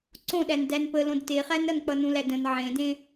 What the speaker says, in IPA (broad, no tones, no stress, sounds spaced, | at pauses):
ǀ õ ɗ æ n d æ n p ə l õ d t e χ æ n ɾ ʌ n k͡p ʌ n ũ l æ d ə̃ n ʕ ẽ d ẽ